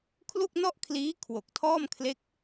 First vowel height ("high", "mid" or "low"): high